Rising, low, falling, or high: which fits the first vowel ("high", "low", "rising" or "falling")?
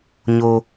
high